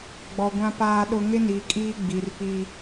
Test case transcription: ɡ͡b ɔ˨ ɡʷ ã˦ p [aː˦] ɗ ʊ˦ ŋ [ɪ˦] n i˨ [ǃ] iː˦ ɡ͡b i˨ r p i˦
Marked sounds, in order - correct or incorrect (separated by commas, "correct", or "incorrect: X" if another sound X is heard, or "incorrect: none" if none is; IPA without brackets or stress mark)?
correct, correct, incorrect: kʼ